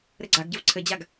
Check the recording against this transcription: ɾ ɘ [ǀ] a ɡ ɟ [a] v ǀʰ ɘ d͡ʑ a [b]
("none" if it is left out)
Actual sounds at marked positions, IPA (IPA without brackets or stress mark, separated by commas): ɡ͡ǀ, ə, ɡ